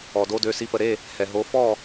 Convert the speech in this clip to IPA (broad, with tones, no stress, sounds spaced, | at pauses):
ɔ˩ d o˨˦ d ø˩˧˩ s i˨˦ p ə˩ ɾ e˥˩ | h ɛ˩ ɦ o˨˦ f ɔ˥˩